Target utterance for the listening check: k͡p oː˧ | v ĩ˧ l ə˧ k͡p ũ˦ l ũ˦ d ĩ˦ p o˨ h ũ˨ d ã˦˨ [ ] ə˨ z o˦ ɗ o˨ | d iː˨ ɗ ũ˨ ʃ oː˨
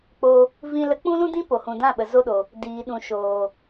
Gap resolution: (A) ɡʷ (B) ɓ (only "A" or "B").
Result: B